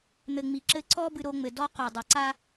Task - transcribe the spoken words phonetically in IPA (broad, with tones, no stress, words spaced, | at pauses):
n̪ɘ˨ŋ͡mi˨ ǁɘ˧ ǀɔ˧ bɨ˧ɾo˧ŋ͡mɘ˨ dɔ˧qo˨dˤi˨ ǀa˧